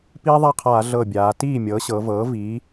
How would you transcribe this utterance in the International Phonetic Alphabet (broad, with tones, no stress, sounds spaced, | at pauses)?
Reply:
p iː˦ ðˤ a˥˩ qʰ aː˧˩˧ ɮ ɤ˧˩ bʲ aː˩˧ t iː˥˩ mʲ ɤː˩˥ ɕ ɤ˩˧ v ɤː˩˥ v iː˩˥